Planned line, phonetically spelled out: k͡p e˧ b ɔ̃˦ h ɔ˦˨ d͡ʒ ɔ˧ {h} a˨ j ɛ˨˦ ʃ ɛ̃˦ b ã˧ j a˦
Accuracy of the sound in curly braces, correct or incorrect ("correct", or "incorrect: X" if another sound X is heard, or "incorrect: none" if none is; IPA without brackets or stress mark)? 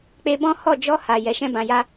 correct